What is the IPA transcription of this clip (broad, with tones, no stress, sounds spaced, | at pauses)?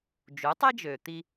d͡ʒ u˩˥ tˤ e˥ d͡ʒ øː˩ t̪ i˧